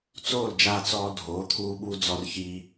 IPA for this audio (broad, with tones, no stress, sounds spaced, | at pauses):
t͡s oː˥˩ l d͡ʒ aː˧ t͡s ɔː˧ dʱ oː˩˥ t̪ʰ uː˧ ɓ u˧ d͡z ɔ˧ r ç iː˧